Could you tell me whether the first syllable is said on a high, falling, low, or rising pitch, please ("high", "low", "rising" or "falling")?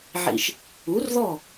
low